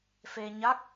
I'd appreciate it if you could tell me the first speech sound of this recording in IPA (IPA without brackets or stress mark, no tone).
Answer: f